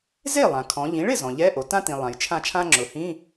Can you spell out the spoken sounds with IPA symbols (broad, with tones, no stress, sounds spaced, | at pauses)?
z e˥˩ lˠ ã˩ kʰ ɔ̃˩˧ ʎ ĩ˩˧ ɭ ɪ˥˩ z ɔ̃˩ ʎ ɛ˧˥˧ ʔ o˩ t ã˥ t ĩ˩ lˠ ã˩ j t͡ʃʰ ã˥˩ t͡ʃʰ ã˥ ŋ͡ǁ ʊ˩˧ h ĩ˧˥˧